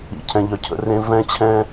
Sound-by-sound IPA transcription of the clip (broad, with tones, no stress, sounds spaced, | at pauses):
ḭ˨ cʰ ɛ̃˨ ʎ œ˨ cʰ ə̰˨ r ẽ˦ v ɛ̃˦ t͡ɕʰ ɛ̃˦